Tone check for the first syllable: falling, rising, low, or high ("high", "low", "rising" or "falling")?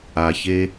low